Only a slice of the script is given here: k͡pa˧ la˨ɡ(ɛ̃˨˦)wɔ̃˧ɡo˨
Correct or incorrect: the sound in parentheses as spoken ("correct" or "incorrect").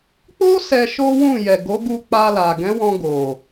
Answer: correct